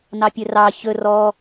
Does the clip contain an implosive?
no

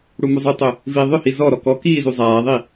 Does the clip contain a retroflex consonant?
yes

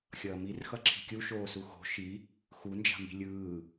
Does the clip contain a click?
yes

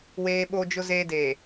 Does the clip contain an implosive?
yes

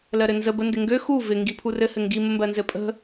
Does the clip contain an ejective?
yes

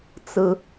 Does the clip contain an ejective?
no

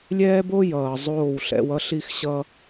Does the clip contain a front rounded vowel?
no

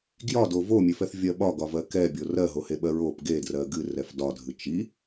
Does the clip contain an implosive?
yes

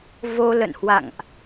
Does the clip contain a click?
no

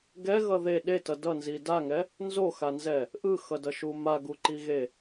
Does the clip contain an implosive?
yes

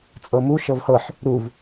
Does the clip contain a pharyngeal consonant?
yes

